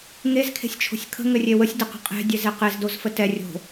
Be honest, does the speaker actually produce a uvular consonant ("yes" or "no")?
yes